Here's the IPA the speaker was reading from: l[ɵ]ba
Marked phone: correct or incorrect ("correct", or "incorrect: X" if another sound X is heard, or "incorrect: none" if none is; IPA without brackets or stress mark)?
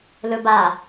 correct